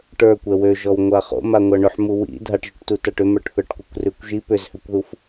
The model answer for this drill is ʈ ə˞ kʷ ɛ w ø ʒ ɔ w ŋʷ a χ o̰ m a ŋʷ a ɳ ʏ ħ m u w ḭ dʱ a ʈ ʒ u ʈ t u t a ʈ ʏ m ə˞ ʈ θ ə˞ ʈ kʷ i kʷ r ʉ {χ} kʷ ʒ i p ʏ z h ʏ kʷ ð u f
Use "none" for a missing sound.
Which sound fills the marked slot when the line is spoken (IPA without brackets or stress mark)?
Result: none